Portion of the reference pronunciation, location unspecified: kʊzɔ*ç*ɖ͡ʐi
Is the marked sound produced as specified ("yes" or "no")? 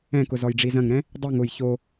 no